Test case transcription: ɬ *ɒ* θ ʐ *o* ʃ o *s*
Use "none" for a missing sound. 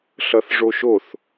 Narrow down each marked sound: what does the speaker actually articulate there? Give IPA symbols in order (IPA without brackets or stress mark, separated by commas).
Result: ʌ, o, θ